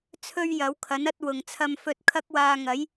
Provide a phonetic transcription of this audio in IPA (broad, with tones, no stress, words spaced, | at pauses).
t͡sʰɵ˥ɥjɐ˨˥wkʰɐ˨˥n ɐ˥t̚wʊ˨ŋ t͡sʰɐ˥mfɵ˥t̚ kʰɐ˥k̚waː˧ŋɐ˨˥j